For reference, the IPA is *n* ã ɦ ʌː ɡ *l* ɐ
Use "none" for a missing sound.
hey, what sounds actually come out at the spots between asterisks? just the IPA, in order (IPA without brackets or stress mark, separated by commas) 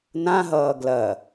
n, l